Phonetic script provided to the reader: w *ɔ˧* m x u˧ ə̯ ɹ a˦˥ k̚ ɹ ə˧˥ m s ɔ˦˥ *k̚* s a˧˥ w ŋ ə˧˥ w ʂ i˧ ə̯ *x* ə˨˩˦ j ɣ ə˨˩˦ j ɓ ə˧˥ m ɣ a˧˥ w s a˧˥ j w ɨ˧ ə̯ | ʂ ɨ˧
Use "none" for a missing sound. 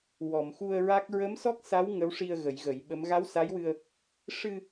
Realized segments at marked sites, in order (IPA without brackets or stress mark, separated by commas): ɔ˨˩˨, k̚, ɣ